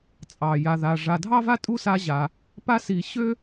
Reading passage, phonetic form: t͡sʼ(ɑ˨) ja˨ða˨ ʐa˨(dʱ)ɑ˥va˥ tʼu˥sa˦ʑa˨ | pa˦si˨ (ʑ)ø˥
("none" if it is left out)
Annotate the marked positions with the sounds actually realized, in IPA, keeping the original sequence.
ɑ˩, dʱ, ɕ

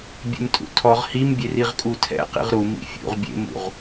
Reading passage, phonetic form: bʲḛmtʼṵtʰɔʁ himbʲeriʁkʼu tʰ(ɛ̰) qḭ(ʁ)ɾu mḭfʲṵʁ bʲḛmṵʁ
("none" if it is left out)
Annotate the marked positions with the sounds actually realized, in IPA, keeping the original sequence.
ɛ̰, ʁ

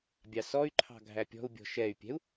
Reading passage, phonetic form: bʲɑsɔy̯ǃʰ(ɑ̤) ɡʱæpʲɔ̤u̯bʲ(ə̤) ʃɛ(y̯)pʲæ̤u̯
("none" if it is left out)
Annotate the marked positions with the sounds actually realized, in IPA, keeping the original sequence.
ɑ̤, ɔ̤, y̯

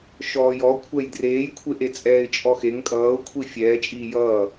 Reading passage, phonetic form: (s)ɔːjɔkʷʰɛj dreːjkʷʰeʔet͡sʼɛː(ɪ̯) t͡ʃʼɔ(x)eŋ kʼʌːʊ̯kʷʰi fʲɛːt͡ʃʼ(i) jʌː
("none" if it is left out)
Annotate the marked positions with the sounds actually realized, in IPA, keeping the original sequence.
ʃ, ɪ̯, x, iː

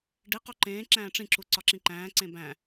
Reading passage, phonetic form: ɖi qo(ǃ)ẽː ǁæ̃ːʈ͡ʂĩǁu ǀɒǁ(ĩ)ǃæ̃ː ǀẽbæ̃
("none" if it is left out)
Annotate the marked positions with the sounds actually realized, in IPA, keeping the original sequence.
ǃ, ĩ

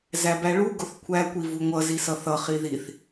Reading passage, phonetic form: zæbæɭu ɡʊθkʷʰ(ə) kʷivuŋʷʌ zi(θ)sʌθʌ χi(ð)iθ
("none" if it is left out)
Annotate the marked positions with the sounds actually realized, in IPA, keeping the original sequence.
æ, none, ð

